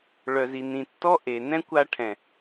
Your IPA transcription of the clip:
ɭ œ˨ z i˨ n ĩ˨ tː ɔ˦ ʔ e˨ n ɛ̃˦ kʷ a˧ ʈʰ ɛ̃˨

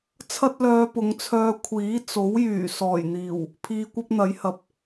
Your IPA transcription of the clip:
t͡sʰ ɐ˥ t̚ l œː˧ p ʊ˨˧ ŋ t͡sʰ œː˧ kʷʰ iː˨˥ t͡s o˨˥ w j yː˨˩ s ɔː˨˩ j n̪ iː˨˩ w | pʰ iː˧ kʷ ɐ˥ p̚ n̪ ɐ˨˥ j h ɐ˨ p̚

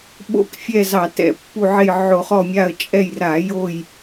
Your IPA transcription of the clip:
ɓ o̰˦˨ k fʲ ɛ˦˨ z ɑ˧˩˧ t ɛ̰˧˩˧ pː u˦˨ ʕ e˦˨ j ʕ o˧˩˧ χ ɔ˦˨ mʲ a˦˨ ə̯ t͡ʃʼ ɛ˦˨ j r a˧˩˧ j o˦˨ j

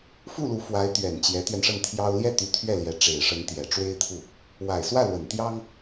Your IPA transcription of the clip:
f u˥˩ l u˧˥ f w a˧˥ ɪ̯ t̪ ɥ ɛ˨˩ n t͡ɕ j ɛ˧˥ t̪ ɥ ɛ˧ n ʂ ə˥˩ n t̪ʰ j ɑ˥ ʊ̯ l j ɛ˥˩ t̪ y˧˥ t̪ʰ ɥ ɛ˥˩ l j ɛ˧˥ ʈ͡ʂ e˨˩ ɪ̯ ʂ ə˧˥ n t̪ j ɛ˨˩ ʈ͡ʂ w e˥ ɪ̯ t̪ʰ u˥˩ | w a˨˩ ɪ̯ s w ä˥˩ l w ə˨˩ n t̪ j ɑ˥ ŋ

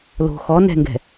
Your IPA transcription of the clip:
l o̤ x ɔ n ɛ̤ ŋ ɡ ɛ̤

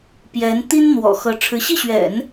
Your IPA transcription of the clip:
p j ɛ˧˥ n t̪ i˥ n n̪ w ɔ̰˨˩ x ɤ˧˥ ʈ͡ʂʰ ɻ̩˧˥ ɕ i˥˩ ɕ ɥ ɛ̰˨˩˦ n

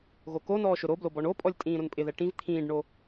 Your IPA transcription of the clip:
ɣ o k o n ɔː ʃ ʊ ɾ o b l o b ɔ ɳ o pʼ ɔ lʲ tʼ ĩː ɾ ʊ n pʼ ɪ ð ɛ ʈ ĩ v t̪ʰ ĩː ɖ ɳ o

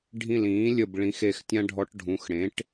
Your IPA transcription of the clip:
ɖʱ ĩ˧˩ l ĩː˩˥ lʲ ə˧˩ b ɭ ĩ˩˥ x e˧˩ x tʲ ã˦ ɖʱ ɔ˨˩˦ ʈ ɖʱ ũ˩˧˩ x ɽ ẽ˩˥ ʈ

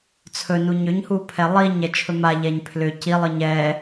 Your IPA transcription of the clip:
t͡sʰ ɵ n u ɲ ʏ ɲ h u pʰ ɛ lˠ i ɲ ɛ t͡ʃʰ ɵ m a ʎ ɛ ɲ pʰ l ʏ c i lˠ ɯ ɲ ɛ

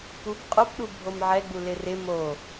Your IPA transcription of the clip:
p u b qʼ o p ɗ u bʱ o m ʕ ɛ ɡ͡b u l ɪ r ɪ m o

